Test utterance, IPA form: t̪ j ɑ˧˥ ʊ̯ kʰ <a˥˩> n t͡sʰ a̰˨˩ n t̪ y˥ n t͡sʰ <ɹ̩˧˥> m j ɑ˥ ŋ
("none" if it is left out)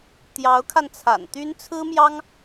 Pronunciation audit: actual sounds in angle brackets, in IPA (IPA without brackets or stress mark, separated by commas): a˧, ɹ̩˥